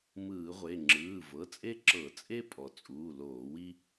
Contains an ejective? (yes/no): yes